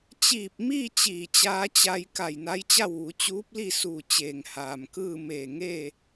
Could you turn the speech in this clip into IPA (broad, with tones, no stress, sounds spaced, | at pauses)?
t͡ɕ iː˧˩ p̚ m iː˥˨ t͡ɕ iː˧˩ t͡ɕ aː˧ t͡ɕ a˧ j k a˧˩ j n a˧˥ j t͡ɕ a˥˨ w ʋ u˩˧ t͡ɕ uː˧˥ p̚ l i˥˨ s uː˧˩ t͡ɕ eː˩ ŋ h aː˩ m k ɯː˥˨ m eː˧˩ ŋ eː˥˨